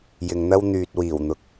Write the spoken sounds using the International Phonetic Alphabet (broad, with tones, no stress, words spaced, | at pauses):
jɪ˨ŋn̪ɐ˥w n̪yː˨t̚wiː˨˩wn̪ʊ˨k̚